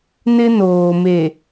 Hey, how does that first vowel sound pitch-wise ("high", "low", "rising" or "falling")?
high